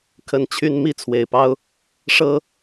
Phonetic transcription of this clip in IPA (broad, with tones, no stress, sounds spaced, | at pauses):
kʰ ə˥˨ n t͡ɕʰ y˦ n m i˥˨ t͡sʰ w e˨˩ ɪ̯ p ɑ˦ ʊ̯ | ʂ ɤ˦